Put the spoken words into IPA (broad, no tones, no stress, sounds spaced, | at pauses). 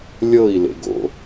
lʲ ɤ i̯ l ḛ ɡ o̰